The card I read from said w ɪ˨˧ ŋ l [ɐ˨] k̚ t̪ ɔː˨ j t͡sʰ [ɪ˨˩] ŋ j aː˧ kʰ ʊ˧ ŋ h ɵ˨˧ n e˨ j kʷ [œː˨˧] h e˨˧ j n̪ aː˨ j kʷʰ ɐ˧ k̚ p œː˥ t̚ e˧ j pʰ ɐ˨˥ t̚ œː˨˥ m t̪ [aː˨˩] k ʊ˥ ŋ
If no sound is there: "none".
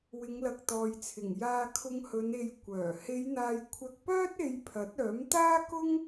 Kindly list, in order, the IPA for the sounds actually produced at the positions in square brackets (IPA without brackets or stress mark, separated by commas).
ɐ˨, ɪ˨˩, œː˨˩, aː˥